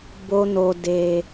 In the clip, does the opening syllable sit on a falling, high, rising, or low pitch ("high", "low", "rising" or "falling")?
high